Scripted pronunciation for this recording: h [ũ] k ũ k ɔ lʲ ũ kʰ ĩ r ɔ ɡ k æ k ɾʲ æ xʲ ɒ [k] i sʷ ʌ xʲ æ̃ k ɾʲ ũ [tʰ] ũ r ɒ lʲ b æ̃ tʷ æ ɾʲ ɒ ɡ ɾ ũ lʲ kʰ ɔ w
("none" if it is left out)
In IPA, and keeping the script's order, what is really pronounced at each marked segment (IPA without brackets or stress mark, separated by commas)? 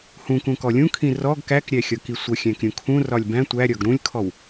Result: ũ, k, kʰ